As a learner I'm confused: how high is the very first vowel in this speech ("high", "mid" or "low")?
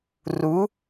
high